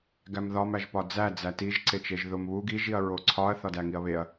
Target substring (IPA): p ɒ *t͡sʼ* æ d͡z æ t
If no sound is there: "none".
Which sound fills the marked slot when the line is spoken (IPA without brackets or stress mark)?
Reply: d͡z